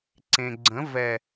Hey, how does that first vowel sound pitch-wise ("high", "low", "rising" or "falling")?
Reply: low